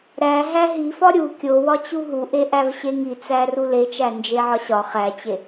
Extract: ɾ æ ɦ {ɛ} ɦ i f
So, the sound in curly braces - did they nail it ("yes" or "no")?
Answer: no